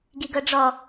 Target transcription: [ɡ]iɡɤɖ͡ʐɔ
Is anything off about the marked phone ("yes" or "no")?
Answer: no